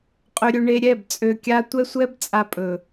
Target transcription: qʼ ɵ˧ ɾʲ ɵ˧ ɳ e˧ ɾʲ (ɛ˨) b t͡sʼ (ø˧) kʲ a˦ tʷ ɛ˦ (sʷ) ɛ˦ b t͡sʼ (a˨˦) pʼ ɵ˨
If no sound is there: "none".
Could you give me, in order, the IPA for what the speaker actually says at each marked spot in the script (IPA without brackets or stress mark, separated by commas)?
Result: ɛ˦˨, ø˧, sʷ, a˧